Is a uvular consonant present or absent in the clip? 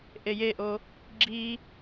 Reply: absent